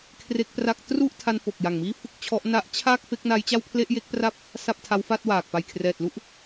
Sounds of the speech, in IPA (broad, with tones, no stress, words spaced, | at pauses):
kʰre˦˥k̚pra˦˥k̚ tru˥˩ʔtʰa˧n fo˨˩k̚ja˨˩ŋmiː˥˩ fɯ˥˩k̚t͡ɕʰɔ˦˥ʔ na˦˥ʔt͡ɕʰaː˥˩k̚ fe˦˥k̚na˦˥j t͡ɕa˥˩wpʰle˥˩ʔje˦˥k̚pra˥˩p̚ | sa˥˩p̚tʰa˦˥wfa˥˩t̚waː˨˩k̚ pa˨˩jkʰrɛː˨˩t̚lu˥˩ʔ